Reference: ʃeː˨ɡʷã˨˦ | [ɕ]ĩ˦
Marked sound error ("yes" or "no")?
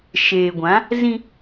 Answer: yes